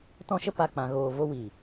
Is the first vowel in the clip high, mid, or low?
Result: mid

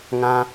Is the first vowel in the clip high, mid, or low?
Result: low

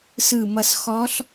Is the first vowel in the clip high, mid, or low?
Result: high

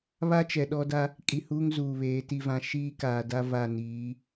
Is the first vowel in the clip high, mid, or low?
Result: low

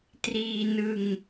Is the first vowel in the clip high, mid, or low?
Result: high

